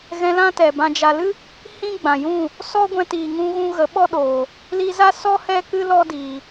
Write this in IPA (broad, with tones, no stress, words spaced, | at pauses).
ɣɛ̃˧ lã˦tɛ˨bã˧ d͡ʒa˨lɨ˦ | hĩ˦ɡ͡bã˨jũ˦˨ | sɔ˦ɡʷɛ̃˧ tiː˨ŋũ˧ɣũ˧ ɣə˨˦ɓɔ˦ ɗoː˨ | li˧za˦sɔ˦ hɛ˦ kɨ˦lɔ˦diː˨